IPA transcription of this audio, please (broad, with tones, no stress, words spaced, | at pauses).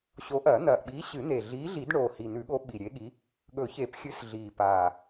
ɕo˨˥ʔɐː˨˩˦n̪ɐː˨˩ʔɓiː˨˥ ɕɨ˨˩˦n̪e˨˩ ɮiː˨˥ɮi˨˩˦d ɳoː˨˩hi˨˩n̪ʉ˨˩˦ɠo˨˥ ɓi˨˩ɾʲe˨˥ɠi˨˥ | ɠɵ˨˩˦çe˨˩˦pxʲɨ˨˥s ɮiː˨˩paː˨˩